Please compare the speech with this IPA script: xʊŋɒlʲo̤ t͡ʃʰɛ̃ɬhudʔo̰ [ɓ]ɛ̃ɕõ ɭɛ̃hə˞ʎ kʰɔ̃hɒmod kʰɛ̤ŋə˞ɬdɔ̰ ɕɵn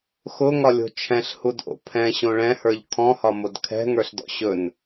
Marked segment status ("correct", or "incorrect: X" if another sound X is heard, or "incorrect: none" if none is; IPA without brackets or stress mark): incorrect: pʰ